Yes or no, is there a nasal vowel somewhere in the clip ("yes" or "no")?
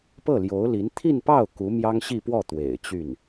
no